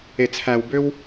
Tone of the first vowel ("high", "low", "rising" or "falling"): low